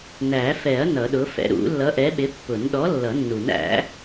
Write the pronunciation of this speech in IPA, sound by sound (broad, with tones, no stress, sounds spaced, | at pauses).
n æ˨˩˦ f ɛ˨˩˦ ɐ̯ n ʌ˨˩˦ ɗ ʊ˨˥ f ɛ̰˨˥ ɾ ṵ˨˩˦ lː ʌ˨˥ ʔ ɛ˨˥ ɓ ɪ˨˥ pː ʊ˨˩˦ n ɗ ɔ˨˥ lː ʌ˨˩˦ nː u˨˩˦ n æ̰˨˥